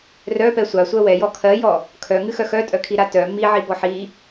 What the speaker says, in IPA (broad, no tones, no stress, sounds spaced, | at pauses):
r œ p ɛ sʷ a sʷ ɜ w ɛ j ɔ kʰ ɜ j ɔ | kʰ œ ŋ ɨ x œ x œ tʼ œ kʰ i ɾ a t œ m i ʕ i b ɔ ħ i